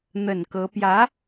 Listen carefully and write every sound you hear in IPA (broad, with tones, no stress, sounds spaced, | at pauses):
n̪ ə˨˩ n k ɤ˧˥ p j ä˧˥